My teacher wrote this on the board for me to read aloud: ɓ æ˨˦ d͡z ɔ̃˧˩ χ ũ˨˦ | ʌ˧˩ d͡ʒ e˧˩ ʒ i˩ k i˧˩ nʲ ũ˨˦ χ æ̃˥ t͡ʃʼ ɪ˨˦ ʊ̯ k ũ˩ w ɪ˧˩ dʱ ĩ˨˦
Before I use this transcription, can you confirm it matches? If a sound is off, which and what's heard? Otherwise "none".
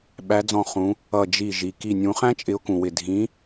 e˧˩ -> i˧˩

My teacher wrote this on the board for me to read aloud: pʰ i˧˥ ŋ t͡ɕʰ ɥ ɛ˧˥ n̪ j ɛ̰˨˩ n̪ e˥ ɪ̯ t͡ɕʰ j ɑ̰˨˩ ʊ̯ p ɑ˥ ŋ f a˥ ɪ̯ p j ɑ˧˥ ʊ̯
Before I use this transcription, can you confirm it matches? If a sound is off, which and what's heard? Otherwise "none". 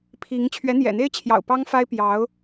none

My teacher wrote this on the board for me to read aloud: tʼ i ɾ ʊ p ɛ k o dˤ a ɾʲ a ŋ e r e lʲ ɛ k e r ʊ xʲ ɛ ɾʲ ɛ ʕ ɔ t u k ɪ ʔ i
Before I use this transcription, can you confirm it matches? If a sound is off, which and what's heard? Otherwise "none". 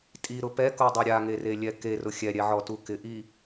none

